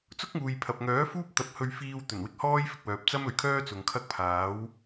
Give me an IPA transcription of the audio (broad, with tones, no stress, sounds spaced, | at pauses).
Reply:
t͡s ʊ˥ k̚ ŋ uː˨ j pʰ ɐ˨ p̚ ŋ œː˨˥ f uː˥ p̚ t̪ ɐ˨˥ p̚ h ɵ˧ ɥ f iː˧ w t̪ ɵ˨˩ n w ɪ˧ k̚ h ɔː˥ j f ɪ˧ k̚ w œː˨ p̚ t͡s ɐ˥ m ɵ˨ ɥ kʰ œː˥ t͡s ʊ˨ ŋ kʰ ɐ˥ k̚ pʰ aː˨˥ w